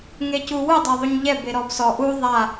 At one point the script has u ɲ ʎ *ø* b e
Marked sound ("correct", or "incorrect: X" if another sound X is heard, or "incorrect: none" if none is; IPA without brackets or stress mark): incorrect: ɛ